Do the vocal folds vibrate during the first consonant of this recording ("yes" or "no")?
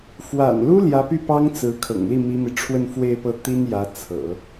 no